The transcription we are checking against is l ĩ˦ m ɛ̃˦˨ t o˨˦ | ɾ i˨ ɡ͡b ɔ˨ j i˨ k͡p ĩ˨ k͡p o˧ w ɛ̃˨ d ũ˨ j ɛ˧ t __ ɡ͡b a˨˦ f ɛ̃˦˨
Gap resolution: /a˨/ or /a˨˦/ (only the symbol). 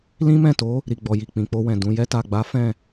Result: a˨